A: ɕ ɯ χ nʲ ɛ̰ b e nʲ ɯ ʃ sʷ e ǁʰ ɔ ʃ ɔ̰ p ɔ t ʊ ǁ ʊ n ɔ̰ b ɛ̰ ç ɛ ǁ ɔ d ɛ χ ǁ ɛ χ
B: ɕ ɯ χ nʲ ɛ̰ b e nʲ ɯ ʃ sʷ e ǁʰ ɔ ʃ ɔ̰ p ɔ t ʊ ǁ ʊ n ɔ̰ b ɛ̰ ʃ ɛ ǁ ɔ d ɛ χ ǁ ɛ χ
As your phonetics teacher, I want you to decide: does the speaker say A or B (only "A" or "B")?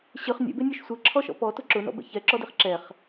A